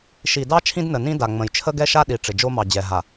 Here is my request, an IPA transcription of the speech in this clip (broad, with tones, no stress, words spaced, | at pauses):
ʃi˨dɑ˦ t͡ʃʰĩ˦dnə˨nĩ˦ da˨ŋ͡mə̃˨j t͡ʃʰə˦ɡɛ˦ʃa˦ ɗi˨ ʈ͡ʂɪ˨d͡ʒo˦mɑ˨d͡ʑɛ˨ ɦa˨